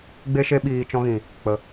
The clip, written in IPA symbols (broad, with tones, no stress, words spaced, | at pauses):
ɡ͡be˧ʃe˧ ɓiː˨ t͡ʃɔ̃˧ɣĩ˨ | k͡pə˨